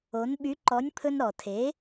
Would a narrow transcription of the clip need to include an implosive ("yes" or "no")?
yes